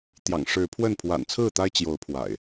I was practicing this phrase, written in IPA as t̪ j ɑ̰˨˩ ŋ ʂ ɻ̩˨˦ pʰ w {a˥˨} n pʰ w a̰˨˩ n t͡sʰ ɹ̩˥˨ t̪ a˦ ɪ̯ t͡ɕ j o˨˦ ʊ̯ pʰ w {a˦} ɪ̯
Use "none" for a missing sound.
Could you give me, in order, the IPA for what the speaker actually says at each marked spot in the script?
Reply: ə˥˨, a̰˨˩

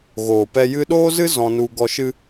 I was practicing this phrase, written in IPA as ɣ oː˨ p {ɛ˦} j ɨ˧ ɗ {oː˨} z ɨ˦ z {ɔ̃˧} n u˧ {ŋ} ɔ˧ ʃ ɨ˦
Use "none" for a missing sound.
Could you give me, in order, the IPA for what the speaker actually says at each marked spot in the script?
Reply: ɛ˧, oː˦, ɔ̃˧, ɡ

